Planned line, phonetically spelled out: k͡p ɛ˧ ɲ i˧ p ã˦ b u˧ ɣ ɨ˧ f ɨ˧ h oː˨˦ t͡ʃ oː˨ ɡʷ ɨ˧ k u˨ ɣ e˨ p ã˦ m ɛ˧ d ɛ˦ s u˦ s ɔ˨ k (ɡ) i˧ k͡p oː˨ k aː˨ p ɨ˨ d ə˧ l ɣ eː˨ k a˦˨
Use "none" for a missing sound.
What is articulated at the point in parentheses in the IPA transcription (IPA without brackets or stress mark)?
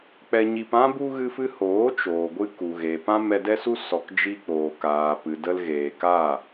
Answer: d͡ʒ